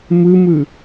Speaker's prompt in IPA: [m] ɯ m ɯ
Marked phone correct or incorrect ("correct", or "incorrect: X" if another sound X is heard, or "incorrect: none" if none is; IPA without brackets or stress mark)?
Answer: correct